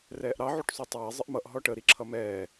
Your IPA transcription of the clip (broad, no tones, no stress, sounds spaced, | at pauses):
r ɛː ʔ ɾ ɑ ʕ u ʈ sˤ u tˤ ɛː zˤ ə ʔ m ʌ ʔ ɦ ɔ ʈ ə ɾ i ǁʰ ʌ m ɛː